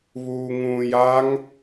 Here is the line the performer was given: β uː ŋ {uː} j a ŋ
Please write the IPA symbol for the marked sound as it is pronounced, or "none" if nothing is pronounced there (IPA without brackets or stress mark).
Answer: ũː